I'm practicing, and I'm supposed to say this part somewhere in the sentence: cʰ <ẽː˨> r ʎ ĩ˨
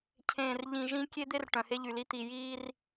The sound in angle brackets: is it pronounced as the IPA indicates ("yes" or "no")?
yes